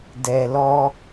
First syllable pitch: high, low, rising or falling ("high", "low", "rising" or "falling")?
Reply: low